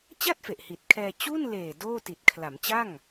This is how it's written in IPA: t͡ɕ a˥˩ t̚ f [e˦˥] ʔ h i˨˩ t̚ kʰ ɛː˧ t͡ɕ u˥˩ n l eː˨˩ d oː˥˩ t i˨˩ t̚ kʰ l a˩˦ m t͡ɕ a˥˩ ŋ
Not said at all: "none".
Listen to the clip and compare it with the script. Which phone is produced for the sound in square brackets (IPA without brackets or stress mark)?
e˨˩